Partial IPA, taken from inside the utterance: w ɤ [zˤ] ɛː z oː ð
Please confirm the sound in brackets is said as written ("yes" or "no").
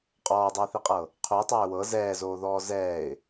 no